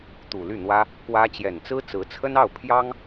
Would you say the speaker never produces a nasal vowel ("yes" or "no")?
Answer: yes